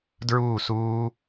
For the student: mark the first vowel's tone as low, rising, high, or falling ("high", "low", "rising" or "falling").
falling